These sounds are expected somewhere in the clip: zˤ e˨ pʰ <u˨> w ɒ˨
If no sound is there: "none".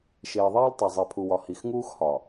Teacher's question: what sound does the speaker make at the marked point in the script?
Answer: u˨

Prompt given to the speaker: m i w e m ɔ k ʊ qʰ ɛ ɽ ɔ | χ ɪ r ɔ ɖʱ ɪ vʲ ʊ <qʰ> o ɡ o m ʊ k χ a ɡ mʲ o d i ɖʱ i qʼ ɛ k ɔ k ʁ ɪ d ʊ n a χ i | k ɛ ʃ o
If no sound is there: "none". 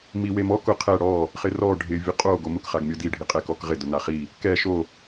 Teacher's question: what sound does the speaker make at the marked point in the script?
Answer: qʼ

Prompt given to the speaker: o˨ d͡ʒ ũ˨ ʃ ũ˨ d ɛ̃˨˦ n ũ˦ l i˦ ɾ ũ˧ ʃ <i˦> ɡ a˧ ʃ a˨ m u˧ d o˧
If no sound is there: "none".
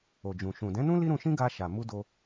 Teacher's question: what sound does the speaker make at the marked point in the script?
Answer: ĩ˦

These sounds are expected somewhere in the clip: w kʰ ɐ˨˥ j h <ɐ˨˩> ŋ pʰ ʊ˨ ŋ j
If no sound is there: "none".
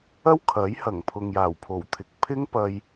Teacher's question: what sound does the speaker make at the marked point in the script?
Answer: ɐ˨˩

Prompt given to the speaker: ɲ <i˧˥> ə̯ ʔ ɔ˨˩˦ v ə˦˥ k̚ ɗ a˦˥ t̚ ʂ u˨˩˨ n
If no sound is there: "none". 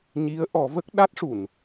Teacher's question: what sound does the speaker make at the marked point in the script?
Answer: i˧˥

